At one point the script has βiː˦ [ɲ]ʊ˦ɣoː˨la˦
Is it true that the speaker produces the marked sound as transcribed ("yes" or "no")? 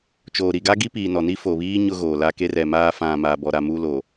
yes